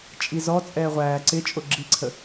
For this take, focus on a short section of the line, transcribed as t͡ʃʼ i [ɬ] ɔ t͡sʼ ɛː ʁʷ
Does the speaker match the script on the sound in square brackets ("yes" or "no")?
no